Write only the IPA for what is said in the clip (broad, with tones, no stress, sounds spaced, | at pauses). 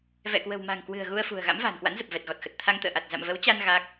v ɛ̰˧˨ k w ə̤˨˩ w m a̤˨˩ ŋ k w ɨ̤˨˩ ə̯ ɣ u˧ ə̯ f ṳ˨˩ ə̯ ɣ a̰˧˥ m v a̤ː˨˩ n k w a̰˧˥ n z ə˨˩ p̚ v ɛ˨˩ t̚ ɣ ɔ˨˩ t̚ x ə˨˩ t̚ t̪ʰ a˧ ŋ t̪ ə̰ː˧˨ ʔ a˨˩ t̚ z a̰˧˨ m v ə˨˦ w t͡ɕ a˧ n ɣ a˦˥ k̚